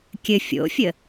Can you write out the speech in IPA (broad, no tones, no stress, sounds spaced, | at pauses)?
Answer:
kʲ ɘ fʲ o̰ fʲ ə